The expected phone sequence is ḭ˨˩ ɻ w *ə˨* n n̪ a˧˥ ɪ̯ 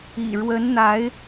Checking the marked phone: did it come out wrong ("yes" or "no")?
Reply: yes